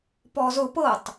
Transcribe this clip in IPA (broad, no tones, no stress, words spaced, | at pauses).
pɔzʊ pɤtˤ